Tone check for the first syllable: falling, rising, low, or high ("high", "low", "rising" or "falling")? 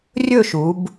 falling